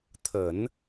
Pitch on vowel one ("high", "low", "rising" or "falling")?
low